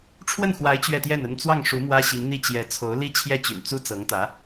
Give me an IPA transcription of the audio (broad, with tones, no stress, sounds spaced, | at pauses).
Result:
ʈ͡ʂʰ w ə˥˩ n x w a˧˥ ɪ̯ t͡ɕ ɥ ɛ˥˧ t̪ j ɛ˥˩ n ə˥ n t͡s w ɑ˥˩ ŋ ʂ u˧˥ m w ä˥ ɕ i˧˥ ŋ n̪ i˥˩ t͡ɕ j ɛ˧˥ t͡sʰ o˧˥ ʊ̯ l i˥ t͡ɕʰ j ɛ˥˩ t͡ɕ y̰˨˩ n t͡s u˥ t͡s ɤ˧˥ ŋ t̪ ä˧˥